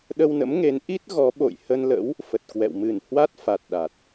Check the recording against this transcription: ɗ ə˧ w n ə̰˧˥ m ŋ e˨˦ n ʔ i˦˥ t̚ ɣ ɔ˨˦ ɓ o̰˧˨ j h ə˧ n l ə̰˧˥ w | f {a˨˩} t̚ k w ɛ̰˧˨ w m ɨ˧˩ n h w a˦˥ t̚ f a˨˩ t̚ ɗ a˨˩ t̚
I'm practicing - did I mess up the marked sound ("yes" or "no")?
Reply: yes